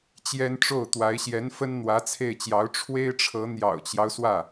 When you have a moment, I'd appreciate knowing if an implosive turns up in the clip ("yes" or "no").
no